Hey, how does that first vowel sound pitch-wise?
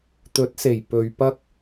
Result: rising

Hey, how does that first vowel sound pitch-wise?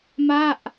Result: falling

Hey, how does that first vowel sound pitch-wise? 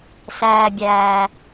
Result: low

